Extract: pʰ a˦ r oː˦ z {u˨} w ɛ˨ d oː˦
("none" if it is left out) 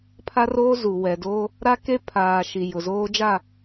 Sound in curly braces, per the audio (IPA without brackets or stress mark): u˨